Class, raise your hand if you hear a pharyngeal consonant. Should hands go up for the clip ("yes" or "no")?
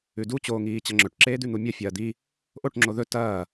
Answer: no